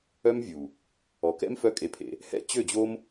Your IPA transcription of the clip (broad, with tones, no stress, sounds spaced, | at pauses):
œ˦ m vʲ u˨ | ɔ˨ k ɛ̰˦ m f œ˦ kʼ e˧ pʰ ḛ˧ | h ɛ̰˦˨ t͡ɕ ø˦˨ d͡ʑ o˦ m